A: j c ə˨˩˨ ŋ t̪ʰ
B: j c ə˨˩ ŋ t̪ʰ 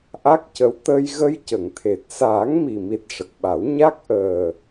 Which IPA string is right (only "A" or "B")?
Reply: A